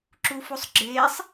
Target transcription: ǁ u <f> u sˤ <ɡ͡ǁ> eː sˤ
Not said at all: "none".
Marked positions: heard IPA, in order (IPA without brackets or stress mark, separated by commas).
f, ɡ͡ǁ